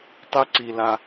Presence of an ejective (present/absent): absent